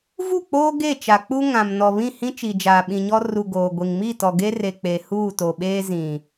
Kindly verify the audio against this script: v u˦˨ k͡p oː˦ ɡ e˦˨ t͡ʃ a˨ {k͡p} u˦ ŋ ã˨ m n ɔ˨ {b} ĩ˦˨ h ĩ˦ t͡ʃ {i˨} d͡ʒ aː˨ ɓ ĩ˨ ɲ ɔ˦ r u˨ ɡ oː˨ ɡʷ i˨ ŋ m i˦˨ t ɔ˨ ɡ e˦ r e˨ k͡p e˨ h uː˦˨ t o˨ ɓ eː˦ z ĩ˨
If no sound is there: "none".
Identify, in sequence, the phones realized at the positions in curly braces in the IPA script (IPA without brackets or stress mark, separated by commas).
k͡p, β, i˨